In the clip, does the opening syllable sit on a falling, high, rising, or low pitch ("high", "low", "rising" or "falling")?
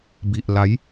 low